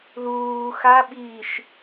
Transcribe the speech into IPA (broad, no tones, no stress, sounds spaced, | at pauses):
ð uː x a ɓ iː ʃ